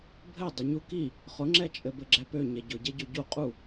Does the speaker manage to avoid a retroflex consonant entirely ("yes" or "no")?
yes